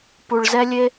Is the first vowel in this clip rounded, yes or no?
yes